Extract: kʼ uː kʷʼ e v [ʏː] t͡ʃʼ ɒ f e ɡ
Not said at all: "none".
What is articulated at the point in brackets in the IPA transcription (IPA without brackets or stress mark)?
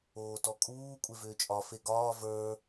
ʏː